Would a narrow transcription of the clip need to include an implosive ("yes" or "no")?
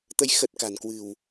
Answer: no